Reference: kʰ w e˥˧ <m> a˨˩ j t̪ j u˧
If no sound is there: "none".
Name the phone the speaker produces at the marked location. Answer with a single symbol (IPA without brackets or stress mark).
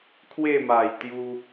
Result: m